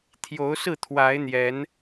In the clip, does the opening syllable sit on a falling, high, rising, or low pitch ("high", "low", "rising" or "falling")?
rising